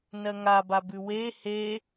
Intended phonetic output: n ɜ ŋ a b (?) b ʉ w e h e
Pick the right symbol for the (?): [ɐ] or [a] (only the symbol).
a